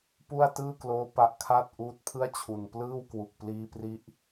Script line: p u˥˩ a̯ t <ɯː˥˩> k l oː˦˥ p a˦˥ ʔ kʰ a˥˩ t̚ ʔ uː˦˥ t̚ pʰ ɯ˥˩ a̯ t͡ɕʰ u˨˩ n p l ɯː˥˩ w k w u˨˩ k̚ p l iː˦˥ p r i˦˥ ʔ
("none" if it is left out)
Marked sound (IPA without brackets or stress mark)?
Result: ɯː˥˩